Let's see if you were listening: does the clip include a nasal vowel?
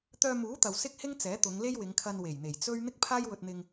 no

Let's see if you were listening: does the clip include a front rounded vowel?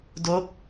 no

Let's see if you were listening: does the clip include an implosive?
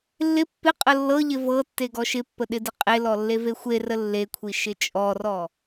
yes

